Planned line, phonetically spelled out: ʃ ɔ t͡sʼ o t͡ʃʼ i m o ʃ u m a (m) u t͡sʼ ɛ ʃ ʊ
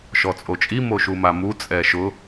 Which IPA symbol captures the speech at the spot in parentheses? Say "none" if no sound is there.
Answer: m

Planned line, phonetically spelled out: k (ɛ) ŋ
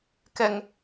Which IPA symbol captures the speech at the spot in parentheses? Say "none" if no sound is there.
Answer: ɛ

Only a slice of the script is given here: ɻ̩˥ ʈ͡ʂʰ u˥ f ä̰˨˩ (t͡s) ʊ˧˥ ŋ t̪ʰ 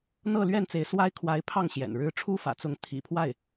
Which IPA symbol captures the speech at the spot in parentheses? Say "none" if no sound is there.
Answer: t͡s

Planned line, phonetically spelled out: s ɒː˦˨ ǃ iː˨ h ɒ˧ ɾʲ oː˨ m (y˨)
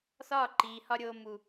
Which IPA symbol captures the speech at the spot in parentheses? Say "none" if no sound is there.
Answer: u˨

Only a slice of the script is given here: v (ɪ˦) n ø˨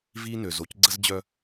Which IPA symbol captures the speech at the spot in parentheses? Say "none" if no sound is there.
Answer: i˦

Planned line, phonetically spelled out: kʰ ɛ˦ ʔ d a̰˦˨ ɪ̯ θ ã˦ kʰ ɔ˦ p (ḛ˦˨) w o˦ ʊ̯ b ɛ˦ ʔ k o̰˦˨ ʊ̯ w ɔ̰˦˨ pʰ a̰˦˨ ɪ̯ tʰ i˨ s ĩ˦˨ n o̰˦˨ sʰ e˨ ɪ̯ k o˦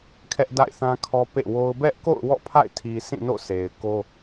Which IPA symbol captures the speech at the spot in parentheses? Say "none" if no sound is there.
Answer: ḛ˦˨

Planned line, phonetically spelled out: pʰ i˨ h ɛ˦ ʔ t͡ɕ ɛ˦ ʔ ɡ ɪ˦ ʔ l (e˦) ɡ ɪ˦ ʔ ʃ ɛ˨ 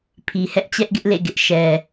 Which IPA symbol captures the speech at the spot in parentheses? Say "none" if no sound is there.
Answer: ḛ˦˨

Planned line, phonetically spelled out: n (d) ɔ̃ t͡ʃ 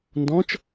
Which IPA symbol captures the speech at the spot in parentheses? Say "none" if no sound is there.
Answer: d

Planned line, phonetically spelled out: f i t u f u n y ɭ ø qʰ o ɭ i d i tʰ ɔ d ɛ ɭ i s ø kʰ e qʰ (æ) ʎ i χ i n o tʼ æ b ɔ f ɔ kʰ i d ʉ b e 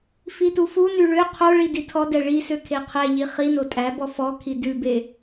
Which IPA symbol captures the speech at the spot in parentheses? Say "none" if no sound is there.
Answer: ɛ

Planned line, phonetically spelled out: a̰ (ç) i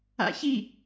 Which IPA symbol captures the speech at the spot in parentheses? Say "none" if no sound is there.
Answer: ç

